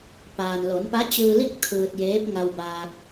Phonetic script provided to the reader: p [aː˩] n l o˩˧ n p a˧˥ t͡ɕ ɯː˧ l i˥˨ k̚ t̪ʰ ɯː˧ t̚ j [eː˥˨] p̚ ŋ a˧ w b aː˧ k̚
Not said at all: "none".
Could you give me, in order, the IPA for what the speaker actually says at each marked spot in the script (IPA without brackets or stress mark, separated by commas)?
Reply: aː˩, eː˧˥